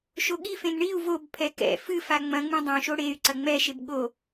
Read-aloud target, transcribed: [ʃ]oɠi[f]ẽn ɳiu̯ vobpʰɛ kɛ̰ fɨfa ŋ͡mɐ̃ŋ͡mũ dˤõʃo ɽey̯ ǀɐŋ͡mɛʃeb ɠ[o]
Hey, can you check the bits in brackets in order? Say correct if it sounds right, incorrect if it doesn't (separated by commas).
correct, correct, correct